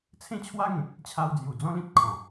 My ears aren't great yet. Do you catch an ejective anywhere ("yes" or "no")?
no